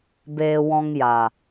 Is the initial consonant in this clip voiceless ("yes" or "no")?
no